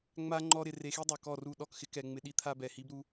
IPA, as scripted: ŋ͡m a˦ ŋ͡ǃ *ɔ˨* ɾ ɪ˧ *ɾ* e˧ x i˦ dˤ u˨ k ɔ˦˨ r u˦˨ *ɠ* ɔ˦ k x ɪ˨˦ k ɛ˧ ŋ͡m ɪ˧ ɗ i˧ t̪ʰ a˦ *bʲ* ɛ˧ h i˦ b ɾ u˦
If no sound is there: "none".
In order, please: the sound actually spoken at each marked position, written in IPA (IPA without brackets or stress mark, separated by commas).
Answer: ɔ˦, r, ɗ, b